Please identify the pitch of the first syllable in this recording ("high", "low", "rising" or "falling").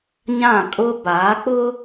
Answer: falling